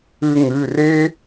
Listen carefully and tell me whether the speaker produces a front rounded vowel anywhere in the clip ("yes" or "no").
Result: no